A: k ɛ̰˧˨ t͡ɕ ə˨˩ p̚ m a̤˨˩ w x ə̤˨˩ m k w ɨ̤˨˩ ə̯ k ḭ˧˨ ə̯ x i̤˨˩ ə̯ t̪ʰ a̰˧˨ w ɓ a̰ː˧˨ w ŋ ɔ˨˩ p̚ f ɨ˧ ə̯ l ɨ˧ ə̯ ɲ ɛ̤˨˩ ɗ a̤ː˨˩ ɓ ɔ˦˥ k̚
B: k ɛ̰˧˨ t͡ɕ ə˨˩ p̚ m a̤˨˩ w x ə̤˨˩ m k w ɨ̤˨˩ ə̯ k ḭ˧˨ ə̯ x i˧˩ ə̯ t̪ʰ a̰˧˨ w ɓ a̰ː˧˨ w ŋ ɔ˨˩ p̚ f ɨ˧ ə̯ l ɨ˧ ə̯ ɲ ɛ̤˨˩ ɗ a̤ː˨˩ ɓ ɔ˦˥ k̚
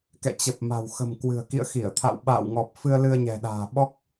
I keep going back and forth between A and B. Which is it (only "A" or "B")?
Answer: B